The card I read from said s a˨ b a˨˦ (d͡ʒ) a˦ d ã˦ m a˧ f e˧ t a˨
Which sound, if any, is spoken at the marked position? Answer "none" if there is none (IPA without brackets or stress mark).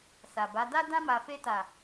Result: d